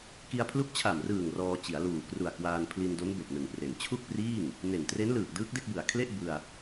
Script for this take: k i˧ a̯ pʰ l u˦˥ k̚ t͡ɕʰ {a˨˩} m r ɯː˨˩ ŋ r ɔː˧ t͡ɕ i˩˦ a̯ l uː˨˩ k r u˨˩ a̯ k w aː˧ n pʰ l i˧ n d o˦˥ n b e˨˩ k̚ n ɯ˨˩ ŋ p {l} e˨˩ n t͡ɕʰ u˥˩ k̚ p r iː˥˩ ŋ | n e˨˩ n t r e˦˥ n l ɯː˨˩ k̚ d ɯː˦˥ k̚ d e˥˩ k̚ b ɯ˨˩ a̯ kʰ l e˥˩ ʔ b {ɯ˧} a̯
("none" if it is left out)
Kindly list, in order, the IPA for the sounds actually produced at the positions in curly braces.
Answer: a˨˩, r, ɯ˧

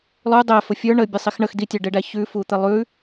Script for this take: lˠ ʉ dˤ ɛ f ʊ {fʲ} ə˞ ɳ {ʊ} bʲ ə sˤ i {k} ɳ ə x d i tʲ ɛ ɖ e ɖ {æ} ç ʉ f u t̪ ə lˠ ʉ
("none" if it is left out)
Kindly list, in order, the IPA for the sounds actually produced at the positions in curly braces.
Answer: fʲ, ə, x, æ

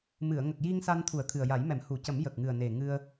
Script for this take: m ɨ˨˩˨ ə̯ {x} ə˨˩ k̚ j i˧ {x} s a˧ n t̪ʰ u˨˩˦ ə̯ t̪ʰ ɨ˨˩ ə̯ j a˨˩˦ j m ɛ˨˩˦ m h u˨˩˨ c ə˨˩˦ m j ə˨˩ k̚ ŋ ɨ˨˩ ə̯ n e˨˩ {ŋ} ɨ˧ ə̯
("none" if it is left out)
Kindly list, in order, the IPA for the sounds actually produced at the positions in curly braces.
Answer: ŋ, ŋ, ŋ

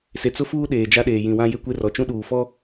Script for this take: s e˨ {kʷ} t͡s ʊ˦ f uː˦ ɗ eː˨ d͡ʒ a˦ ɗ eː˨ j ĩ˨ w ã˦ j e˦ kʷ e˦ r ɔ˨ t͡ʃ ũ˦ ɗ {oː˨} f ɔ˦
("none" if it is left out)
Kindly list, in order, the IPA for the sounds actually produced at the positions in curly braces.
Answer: none, uː˨

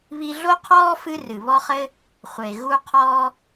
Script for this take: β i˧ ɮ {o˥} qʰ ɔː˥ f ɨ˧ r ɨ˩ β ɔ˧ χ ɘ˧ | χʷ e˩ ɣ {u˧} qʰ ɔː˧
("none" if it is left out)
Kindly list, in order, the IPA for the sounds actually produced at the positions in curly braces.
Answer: o˥, u˧

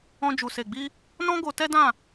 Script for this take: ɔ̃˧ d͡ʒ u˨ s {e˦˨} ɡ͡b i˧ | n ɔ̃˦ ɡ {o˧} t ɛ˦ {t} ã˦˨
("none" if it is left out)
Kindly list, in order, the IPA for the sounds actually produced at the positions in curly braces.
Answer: e˨, o˧, d

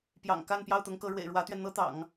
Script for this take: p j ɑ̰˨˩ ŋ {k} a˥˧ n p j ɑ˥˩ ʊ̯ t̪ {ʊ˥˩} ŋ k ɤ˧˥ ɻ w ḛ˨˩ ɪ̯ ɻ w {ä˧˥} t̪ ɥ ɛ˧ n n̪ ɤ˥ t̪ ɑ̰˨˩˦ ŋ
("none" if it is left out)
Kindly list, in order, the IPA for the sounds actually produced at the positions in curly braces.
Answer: k, ʊ˧˥, ä˧˥

